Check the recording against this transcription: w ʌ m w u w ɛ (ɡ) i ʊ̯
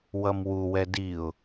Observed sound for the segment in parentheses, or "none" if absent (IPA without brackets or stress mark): d